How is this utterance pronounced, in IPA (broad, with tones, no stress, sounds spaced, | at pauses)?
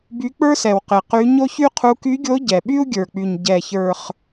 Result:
b y˧˥ k͡p ə˞˥ s ɛ˨˩ w q ɪ˨˩ q y˧˥ ɲ o˥ ç y˥ qʰ u˧˥ k y˧˥ ɡʲ o˧˥ ɟ ɛ˨˩ ɓ y˥ u̯ ɡʲ ə˞˨˩ k͡p y˨˩ ɲ ɟ ɛ˨˩ ç ə˞˨˩ χ